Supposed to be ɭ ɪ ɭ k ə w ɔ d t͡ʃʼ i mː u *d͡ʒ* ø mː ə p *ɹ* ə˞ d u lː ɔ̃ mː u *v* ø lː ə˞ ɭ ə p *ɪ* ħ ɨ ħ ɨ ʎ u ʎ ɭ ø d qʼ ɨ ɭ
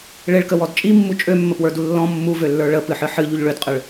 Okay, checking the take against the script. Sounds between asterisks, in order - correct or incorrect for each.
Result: incorrect: t͡ʃʼ, incorrect: w, correct, incorrect: ɨ

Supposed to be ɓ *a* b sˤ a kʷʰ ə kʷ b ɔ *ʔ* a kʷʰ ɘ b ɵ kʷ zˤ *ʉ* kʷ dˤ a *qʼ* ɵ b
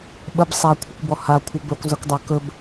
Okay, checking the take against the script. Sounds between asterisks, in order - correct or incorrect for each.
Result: incorrect: ə, incorrect: h, incorrect: ɘ, incorrect: k

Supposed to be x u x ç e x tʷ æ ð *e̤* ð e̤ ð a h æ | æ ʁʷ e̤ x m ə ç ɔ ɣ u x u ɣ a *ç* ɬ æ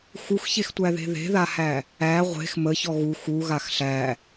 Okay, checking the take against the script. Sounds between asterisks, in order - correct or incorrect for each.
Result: correct, incorrect: x

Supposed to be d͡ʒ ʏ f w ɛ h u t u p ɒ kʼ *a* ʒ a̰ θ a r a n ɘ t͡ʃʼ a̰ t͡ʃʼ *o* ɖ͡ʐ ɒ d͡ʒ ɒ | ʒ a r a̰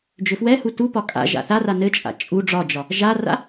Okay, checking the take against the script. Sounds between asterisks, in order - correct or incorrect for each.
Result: incorrect: a̰, incorrect: u

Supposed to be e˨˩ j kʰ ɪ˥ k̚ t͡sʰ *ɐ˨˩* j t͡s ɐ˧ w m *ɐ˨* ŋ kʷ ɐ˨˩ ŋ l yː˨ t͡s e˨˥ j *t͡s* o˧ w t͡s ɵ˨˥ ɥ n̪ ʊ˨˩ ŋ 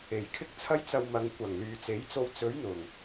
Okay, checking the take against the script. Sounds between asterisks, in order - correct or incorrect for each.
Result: incorrect: ɐ˥, incorrect: ɐ˨˧, correct

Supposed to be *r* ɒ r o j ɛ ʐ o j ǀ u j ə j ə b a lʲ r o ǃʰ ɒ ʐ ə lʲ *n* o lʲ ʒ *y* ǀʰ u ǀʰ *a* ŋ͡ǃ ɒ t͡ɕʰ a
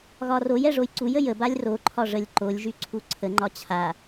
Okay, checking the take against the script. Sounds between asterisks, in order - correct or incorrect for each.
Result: incorrect: ɣ, incorrect: ǃ, correct, incorrect: ə

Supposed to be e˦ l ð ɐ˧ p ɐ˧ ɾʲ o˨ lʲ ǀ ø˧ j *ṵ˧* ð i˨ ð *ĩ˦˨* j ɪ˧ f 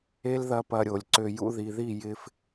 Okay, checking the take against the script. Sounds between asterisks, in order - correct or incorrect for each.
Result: correct, incorrect: i˦˨

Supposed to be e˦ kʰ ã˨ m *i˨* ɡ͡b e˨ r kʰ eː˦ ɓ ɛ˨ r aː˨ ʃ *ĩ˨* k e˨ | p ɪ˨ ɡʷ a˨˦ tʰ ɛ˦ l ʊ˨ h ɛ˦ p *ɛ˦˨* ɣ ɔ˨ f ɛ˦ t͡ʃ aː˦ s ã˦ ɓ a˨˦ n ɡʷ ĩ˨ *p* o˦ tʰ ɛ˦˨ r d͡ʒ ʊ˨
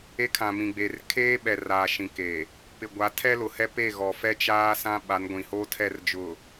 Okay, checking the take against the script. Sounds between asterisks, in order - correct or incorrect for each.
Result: incorrect: ĩ˨, correct, incorrect: e˦˨, incorrect: h

